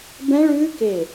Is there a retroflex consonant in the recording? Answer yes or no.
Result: yes